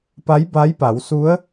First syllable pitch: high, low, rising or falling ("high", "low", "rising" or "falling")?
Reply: rising